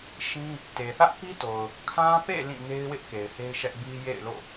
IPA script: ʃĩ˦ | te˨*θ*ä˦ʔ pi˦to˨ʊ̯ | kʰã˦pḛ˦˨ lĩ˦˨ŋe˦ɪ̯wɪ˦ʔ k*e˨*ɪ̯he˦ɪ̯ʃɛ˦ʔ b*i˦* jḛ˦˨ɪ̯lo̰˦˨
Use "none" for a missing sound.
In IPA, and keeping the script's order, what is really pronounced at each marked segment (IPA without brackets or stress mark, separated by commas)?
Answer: θ, e˨, i˦